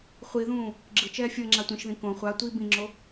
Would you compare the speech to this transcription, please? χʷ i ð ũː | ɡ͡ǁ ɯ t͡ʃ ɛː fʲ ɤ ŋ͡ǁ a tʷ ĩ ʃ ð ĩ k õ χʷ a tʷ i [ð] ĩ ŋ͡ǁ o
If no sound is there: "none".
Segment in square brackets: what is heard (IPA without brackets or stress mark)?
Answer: b